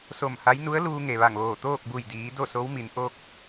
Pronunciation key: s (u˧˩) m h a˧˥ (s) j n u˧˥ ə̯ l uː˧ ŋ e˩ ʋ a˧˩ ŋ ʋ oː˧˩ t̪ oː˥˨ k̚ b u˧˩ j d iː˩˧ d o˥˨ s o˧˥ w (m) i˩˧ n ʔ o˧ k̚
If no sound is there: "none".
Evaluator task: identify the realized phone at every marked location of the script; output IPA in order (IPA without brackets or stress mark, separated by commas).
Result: o˧˩, none, m